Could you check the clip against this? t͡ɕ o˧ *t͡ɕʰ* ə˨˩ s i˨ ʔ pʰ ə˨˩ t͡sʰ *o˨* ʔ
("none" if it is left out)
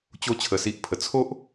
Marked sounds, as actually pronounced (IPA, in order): t͡ɕʰ, o˦

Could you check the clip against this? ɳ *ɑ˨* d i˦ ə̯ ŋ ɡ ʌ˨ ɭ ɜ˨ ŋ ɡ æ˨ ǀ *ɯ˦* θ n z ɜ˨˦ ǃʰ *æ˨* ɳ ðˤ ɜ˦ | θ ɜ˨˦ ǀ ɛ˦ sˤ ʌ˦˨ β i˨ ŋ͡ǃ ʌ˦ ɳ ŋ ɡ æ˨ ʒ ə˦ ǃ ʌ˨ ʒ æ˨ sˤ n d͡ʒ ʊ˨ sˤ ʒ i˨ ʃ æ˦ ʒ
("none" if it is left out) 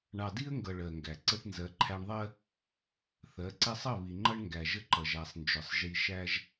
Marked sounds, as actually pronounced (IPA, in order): ɑ˨, ə˦, æ˦

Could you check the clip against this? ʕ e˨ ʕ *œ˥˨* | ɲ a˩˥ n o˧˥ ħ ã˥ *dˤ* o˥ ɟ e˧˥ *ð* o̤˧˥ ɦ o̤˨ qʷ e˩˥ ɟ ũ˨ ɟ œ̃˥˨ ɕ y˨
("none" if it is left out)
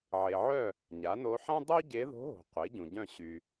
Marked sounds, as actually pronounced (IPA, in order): œ˥˨, dˤ, ð

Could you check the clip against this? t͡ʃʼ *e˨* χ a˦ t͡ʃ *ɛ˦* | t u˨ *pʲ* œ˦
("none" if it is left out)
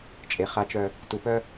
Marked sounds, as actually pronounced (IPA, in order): e˨, œ˦, p

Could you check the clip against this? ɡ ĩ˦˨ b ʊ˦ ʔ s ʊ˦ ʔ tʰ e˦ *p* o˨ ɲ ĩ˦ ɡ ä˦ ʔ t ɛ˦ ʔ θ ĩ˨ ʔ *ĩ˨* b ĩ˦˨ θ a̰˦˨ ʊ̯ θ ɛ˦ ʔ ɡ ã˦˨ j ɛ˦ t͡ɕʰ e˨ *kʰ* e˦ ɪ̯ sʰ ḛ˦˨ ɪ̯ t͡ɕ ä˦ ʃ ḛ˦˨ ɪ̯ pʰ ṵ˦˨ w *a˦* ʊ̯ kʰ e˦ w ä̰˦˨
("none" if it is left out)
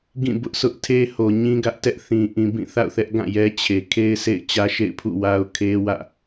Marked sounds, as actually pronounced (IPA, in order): h, ĩ˨, kʰ, a˦

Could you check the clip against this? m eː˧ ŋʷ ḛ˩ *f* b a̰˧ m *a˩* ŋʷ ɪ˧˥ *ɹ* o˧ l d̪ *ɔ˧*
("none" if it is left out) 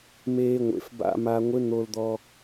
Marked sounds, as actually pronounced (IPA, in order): f, a˧, n̪, ɔ˧

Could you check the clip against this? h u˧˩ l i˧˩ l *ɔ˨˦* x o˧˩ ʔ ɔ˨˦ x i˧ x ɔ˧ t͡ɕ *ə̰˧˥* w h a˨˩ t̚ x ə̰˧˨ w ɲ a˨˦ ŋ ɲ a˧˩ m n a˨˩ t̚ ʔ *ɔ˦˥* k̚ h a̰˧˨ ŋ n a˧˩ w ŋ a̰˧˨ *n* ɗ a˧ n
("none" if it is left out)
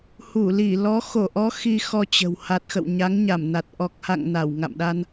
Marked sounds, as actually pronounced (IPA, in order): ɔ˨˦, ə̤˨˩, ɔ˨˩, m

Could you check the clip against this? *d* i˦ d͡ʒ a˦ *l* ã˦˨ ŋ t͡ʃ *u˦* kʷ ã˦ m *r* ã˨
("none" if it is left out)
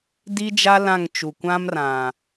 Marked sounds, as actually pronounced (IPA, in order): d, l, u˨, r

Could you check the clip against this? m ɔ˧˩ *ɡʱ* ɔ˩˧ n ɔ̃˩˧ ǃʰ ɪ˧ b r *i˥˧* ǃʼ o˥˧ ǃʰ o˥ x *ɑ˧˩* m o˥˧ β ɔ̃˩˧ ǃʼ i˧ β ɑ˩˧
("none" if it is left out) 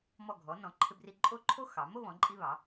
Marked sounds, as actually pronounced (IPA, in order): ɡʱ, i˧, ɑ˩˧

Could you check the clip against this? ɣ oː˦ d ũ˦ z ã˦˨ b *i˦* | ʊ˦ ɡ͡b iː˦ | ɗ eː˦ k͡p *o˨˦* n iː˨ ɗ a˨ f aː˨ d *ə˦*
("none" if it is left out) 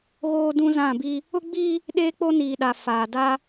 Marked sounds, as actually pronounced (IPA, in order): i˦, o˦, a˦

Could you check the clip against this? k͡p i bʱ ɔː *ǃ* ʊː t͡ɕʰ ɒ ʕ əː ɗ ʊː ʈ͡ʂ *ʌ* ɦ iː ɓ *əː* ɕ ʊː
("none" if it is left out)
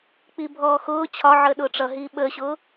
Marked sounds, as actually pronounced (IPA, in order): x, ʌ, əː

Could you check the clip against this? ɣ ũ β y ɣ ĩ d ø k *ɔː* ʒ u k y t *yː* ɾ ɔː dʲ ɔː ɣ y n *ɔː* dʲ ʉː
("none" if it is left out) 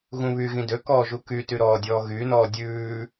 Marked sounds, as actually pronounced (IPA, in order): ɔː, y, ɔː

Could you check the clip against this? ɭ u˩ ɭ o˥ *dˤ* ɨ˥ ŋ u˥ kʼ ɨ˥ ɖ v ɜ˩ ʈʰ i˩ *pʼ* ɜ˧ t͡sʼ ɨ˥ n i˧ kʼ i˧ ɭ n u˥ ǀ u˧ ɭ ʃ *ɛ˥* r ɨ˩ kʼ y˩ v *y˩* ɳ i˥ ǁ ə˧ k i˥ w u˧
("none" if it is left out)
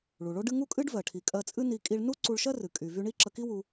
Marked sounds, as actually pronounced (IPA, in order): ɖ, kʼ, ɜ˥, y˧

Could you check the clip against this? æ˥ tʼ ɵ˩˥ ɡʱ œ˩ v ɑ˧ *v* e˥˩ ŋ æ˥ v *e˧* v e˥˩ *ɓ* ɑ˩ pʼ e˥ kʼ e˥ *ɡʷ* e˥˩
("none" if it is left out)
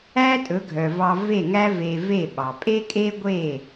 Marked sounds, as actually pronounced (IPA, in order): v, e˧, ɓ, ɡʷ

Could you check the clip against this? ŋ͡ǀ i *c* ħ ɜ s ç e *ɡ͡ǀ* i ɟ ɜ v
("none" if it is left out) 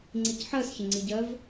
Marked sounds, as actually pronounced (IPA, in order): c, ŋ͡ǀ

